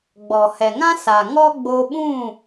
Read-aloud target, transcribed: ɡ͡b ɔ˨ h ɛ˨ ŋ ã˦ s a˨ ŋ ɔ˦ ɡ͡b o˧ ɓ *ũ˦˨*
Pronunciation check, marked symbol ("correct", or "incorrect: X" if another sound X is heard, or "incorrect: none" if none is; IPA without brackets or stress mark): correct